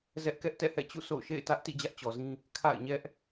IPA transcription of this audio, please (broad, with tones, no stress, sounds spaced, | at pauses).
z ɛ˦ ʔ k ɛ˦ ʔ t ɛ̰˦˨ h ɛ̰˦˨ t͡ɕ ṵ˦˨ sʰ o̰˦˨ ʊ̯ ʃ ḛ˦˨ ɪ̯ t ä˦ ʔ t ḭ˦˨ d͡ʑ ä˦ ʔ t͡ɕ ɔ˨ z ĩ˦ | kʰ a̰˦˨ ɪ̯ ɲ ɛ˦ ʔ